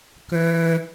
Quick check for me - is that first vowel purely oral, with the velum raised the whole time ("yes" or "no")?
yes